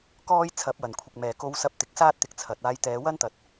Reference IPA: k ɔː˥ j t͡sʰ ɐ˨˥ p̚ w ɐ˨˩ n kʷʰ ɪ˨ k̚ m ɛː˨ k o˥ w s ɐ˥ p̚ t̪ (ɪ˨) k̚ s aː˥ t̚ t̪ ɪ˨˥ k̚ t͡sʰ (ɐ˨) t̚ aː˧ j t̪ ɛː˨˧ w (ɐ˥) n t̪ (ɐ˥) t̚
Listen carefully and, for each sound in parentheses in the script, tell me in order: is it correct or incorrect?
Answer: correct, correct, correct, incorrect: ɐ˨

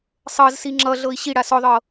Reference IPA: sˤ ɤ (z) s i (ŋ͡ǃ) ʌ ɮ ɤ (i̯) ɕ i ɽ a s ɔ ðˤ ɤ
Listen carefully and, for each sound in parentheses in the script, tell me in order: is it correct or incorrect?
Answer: correct, incorrect: ŋ͡ǁ, correct

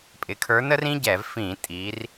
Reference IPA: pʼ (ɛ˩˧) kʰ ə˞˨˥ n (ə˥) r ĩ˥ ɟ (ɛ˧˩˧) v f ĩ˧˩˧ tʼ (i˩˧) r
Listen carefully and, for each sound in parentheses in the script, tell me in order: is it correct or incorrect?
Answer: incorrect: ɪ˩˧, correct, correct, correct

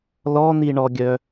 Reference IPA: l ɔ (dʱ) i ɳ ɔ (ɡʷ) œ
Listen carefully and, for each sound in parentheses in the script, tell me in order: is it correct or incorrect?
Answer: incorrect: n̪, incorrect: ɡʲ

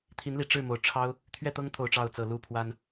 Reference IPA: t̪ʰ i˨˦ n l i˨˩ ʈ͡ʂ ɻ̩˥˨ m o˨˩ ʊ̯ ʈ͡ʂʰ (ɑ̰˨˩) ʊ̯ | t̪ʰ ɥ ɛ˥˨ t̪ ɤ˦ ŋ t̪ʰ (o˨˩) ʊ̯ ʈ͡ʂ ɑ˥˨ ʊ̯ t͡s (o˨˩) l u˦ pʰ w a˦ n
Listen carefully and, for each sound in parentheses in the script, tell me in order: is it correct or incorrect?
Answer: incorrect: ɑ˦, correct, incorrect: ɤ˨˩

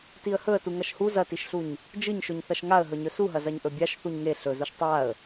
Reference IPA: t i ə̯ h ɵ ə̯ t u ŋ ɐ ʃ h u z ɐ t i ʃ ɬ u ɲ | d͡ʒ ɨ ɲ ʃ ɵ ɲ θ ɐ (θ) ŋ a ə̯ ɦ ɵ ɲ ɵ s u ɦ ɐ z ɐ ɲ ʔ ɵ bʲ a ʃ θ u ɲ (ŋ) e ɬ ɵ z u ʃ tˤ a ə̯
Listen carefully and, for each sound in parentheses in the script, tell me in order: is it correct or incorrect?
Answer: incorrect: ʃ, correct

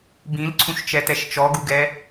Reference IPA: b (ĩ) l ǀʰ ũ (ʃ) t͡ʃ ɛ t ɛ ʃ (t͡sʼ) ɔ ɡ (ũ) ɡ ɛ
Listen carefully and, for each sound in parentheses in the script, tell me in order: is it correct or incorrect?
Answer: correct, correct, incorrect: t͡ʃ, incorrect: u

